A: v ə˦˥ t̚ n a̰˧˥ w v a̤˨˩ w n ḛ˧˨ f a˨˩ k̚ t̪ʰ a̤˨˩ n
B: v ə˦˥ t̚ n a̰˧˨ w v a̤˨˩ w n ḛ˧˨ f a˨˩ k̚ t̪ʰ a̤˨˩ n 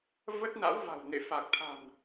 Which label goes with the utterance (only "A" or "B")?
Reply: A